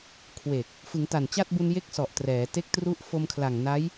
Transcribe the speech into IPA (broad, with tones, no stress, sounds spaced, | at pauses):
kʰ w e˨˩ k̚ | f ɯ˩˦ ŋ t a˨˩ n t͡ɕ a˥˩ t̚ b u˧ n j e˥˩ k̚ s ɔ˨˩ ʔ t r ɛː˩˦ t e˦˥ k̚ t r u˦˥ ʔ f o˧ m kʰ l a˨˩ ŋ n a˦˥ j